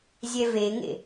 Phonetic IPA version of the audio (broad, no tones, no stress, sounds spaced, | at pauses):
zʲ ɛ v e ŋ ḛ